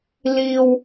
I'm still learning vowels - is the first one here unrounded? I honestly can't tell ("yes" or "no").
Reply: yes